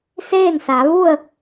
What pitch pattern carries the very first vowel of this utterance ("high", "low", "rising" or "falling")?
falling